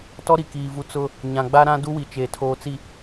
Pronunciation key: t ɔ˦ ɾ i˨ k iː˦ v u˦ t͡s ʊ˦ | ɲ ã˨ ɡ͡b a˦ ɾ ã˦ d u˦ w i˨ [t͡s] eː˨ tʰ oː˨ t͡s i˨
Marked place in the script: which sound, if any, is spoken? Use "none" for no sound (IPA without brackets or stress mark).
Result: t͡ʃ